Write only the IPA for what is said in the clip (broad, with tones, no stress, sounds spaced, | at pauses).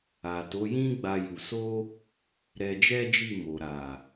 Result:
a˨ t o˨˦ j ĩ˦ ɡ͡b a˦ j u˧ s o˦ | ɾ ɛ˧ d͡ʒ ɛ˦ d͡ʒ i˦˨ m o˨ ɾ a˨